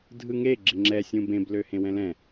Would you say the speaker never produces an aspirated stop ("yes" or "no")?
yes